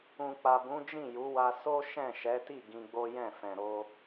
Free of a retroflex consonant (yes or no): yes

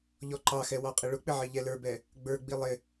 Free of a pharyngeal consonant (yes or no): no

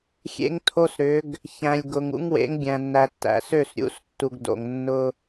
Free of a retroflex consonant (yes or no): yes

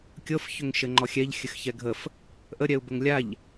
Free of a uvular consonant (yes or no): yes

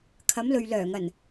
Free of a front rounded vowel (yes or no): no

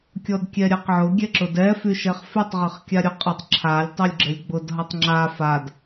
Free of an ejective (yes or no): no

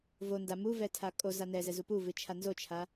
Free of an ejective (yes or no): no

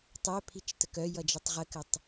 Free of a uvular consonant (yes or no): no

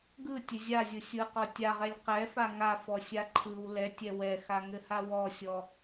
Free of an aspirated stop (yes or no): no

